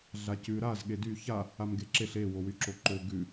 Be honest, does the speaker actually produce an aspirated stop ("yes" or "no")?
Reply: no